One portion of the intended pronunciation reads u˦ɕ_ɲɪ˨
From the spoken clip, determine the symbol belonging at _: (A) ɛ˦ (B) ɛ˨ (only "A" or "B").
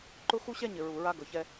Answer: A